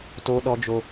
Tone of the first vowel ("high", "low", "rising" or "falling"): high